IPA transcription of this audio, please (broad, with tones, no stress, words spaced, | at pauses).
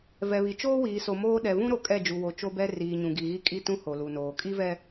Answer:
vɛ˨βi˨ t͡ʃoː˦wiː˨so˨ moː˦ ɗɛ˨vũ˦ɾo˨ kʼɛ˦˨d͡ʒu˨wo˨ t͡ʃo˦bɛ˦ riː˨ɲũ˨ɡi˨ɣi˦ kʼi˦ tũ˦ho˨lu˨noː˨ kʼi˦vɛ˦